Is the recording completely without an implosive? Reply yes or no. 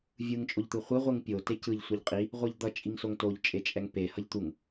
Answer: yes